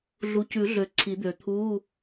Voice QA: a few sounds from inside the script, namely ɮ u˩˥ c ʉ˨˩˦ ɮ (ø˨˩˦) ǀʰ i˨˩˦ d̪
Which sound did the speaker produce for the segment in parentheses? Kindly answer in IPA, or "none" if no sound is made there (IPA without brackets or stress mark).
ø˨˩˦